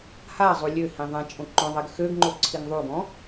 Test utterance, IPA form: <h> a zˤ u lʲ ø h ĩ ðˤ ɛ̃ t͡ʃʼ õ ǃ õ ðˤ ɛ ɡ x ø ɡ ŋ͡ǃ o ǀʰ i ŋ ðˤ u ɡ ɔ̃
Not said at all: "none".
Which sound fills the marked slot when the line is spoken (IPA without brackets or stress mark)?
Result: h